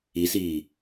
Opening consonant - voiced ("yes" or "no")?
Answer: no